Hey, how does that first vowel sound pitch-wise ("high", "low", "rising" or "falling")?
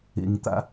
low